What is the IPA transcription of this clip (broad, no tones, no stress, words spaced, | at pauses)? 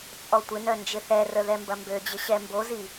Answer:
t͡sʼɔtʷɪnœ nd͡ʒɪθɛrə ðɛmbɐmbød͡ʑɪ ɕɛmbozi